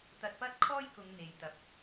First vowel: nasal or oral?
oral